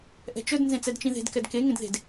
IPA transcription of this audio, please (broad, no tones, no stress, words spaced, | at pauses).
ʔɛ̤t͡ʃɵd nzẽt͡sɛdt͡ʃĩðe̤d kɛdke ŋẽdðe̤d